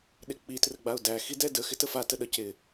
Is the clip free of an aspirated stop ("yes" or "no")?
yes